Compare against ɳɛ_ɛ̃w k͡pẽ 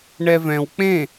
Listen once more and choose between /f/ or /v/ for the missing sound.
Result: v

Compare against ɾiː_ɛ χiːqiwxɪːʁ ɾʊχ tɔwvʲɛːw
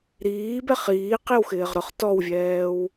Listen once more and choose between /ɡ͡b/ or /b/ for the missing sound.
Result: b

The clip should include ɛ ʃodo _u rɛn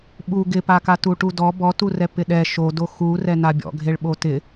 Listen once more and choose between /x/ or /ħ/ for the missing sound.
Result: x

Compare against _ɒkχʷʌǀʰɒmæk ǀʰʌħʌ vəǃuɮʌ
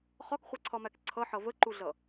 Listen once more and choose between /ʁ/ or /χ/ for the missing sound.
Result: χ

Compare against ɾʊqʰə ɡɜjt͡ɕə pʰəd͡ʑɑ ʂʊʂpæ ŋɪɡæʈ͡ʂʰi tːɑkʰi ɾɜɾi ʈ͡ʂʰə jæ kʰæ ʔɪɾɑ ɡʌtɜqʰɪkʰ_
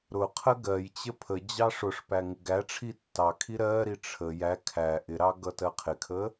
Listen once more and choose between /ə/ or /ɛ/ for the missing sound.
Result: ə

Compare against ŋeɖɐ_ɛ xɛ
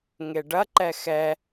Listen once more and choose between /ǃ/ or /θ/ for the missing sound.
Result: ǃ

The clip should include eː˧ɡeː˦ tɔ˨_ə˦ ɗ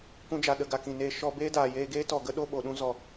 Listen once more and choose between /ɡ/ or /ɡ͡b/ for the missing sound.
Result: ɡ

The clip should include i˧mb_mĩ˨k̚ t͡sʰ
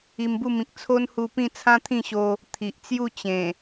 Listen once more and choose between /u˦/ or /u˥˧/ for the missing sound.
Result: u˥˧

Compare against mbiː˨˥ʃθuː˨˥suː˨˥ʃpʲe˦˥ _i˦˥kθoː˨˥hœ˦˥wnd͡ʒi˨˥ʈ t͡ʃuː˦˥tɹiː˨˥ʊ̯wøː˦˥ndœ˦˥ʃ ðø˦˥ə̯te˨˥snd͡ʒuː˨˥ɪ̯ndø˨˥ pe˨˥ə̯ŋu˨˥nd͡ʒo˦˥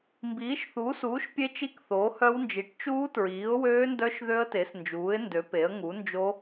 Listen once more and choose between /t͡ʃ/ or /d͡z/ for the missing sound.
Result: t͡ʃ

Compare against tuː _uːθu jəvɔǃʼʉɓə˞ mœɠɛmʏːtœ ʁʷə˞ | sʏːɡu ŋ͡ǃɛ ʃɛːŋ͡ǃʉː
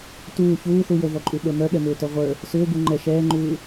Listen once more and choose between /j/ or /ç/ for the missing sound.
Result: ç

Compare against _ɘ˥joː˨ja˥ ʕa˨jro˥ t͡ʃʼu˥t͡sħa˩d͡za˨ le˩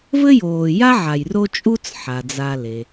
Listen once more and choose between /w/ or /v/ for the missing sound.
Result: v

